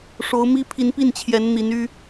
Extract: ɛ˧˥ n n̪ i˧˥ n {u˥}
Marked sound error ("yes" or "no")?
yes